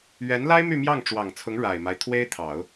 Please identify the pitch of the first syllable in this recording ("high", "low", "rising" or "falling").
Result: rising